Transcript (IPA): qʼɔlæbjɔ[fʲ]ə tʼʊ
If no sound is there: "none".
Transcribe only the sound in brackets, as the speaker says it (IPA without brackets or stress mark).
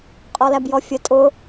fʲ